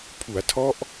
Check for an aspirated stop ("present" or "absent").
present